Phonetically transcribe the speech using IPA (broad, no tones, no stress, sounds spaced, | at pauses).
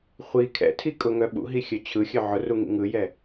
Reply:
χʷ i kʰ ɛ̰ tʰ i kʼ ʊ ŋ œ ɓ ṵ ɦ i xʲ œ t͡ɕʰ ɯ xʲ œ ʕ ʊ r u ŋ ḭ ŋ ɯ j ɛ